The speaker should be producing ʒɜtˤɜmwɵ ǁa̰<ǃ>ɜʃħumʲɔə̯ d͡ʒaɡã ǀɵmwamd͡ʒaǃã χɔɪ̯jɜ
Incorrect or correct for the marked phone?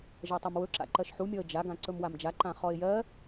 correct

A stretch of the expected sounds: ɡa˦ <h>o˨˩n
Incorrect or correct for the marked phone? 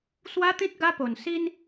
incorrect: p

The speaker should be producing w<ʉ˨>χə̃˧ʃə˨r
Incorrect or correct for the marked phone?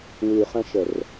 correct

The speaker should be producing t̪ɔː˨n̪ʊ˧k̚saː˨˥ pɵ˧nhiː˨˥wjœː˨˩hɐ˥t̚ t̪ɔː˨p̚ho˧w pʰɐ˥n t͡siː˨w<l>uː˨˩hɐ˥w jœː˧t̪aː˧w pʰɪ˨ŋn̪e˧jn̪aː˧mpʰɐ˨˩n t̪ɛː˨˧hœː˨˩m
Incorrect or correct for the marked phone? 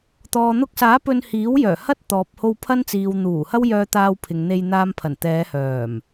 incorrect: n̪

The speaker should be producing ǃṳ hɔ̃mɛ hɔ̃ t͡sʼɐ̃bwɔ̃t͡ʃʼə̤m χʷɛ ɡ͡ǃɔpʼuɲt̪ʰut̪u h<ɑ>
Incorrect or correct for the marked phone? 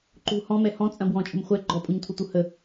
incorrect: ə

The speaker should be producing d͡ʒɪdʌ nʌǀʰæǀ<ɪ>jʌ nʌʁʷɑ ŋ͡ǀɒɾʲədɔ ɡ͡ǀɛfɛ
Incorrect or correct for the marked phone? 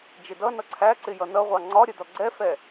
correct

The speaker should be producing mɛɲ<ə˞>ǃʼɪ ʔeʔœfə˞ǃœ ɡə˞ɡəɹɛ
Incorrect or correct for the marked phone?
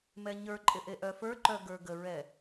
correct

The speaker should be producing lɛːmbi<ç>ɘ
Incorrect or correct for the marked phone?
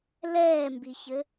correct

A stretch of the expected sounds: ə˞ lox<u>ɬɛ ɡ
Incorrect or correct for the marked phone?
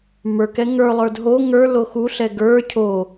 correct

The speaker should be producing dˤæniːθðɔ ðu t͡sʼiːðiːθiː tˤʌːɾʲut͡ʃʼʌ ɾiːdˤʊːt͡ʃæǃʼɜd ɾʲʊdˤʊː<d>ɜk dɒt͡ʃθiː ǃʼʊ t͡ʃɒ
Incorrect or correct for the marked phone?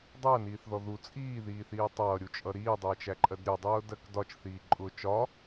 correct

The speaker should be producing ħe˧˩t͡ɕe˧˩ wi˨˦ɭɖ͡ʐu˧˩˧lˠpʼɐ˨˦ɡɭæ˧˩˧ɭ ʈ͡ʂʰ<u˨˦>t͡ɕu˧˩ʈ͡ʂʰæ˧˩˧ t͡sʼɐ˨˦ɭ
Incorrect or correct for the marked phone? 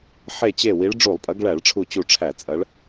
incorrect: u˧˩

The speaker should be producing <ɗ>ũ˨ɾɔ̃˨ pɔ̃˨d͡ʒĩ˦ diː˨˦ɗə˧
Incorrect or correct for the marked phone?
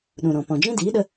correct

